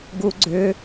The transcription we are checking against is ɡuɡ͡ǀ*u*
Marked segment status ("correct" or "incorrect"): incorrect